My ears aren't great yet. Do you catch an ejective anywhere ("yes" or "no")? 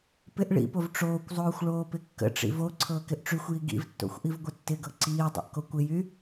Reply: no